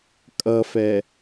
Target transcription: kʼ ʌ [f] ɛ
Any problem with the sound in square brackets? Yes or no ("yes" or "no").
no